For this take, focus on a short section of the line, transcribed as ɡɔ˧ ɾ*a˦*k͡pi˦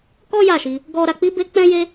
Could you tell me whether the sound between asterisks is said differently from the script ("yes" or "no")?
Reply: yes